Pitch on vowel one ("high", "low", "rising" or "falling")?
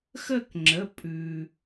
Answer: falling